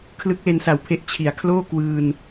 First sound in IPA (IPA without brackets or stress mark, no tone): kʰ